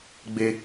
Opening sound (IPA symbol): ɡ͡b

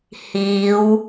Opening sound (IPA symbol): h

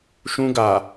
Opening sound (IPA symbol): ʃ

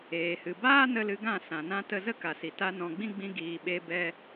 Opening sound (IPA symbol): eː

